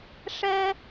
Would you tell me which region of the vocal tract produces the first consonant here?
retroflex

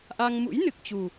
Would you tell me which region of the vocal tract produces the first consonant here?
throat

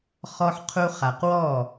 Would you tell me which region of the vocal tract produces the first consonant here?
uvula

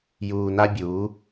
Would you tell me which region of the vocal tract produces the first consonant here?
palate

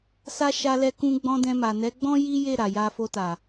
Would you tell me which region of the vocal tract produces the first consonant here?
tongue tip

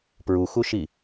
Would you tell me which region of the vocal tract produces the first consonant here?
lips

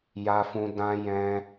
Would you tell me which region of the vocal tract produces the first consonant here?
palate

